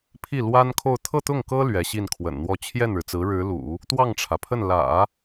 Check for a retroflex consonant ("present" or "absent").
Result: present